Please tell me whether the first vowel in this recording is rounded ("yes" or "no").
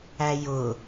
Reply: no